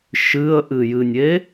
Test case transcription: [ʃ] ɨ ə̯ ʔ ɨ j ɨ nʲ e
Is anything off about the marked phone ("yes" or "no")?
no